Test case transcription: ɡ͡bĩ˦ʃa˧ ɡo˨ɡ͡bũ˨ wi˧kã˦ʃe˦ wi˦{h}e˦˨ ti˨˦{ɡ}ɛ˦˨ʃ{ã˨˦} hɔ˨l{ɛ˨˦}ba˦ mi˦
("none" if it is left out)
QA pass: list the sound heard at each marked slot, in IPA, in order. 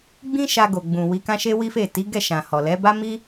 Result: f, ɡ, ã˨, ɛ˨˦

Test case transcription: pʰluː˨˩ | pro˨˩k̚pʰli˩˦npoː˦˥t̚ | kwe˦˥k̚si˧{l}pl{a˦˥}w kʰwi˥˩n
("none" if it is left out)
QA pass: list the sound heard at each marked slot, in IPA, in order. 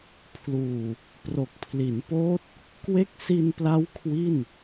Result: n, a˦˥

